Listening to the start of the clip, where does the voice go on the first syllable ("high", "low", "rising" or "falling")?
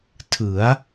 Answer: rising